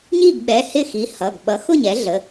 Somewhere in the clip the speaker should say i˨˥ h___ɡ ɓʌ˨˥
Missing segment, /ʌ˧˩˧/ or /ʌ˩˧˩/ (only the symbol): ʌ˩˧˩